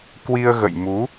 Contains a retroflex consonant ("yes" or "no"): no